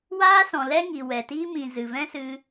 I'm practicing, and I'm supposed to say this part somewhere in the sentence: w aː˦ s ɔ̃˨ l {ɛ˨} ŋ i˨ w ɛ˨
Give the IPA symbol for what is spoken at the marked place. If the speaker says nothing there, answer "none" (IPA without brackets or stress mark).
ɛ˦